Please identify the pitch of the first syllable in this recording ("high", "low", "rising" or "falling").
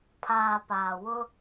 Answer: low